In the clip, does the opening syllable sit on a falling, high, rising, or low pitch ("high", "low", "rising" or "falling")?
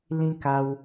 high